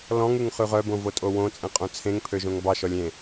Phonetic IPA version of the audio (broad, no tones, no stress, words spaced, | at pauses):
lɔ̃ŋʉŋχʉ ʁœbõvotʼo wõt͡sʼẽqʼõ t͡sʰẽŋpʰøʒõŋ bɑʃɔlʲ ẽ